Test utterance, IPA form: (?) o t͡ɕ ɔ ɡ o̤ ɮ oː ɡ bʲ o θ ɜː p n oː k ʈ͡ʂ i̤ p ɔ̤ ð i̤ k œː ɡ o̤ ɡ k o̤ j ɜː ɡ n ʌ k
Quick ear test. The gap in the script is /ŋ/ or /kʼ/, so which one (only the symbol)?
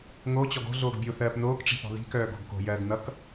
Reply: ŋ